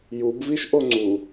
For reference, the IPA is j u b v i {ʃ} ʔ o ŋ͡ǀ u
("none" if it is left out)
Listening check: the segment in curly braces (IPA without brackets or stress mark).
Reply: ʃ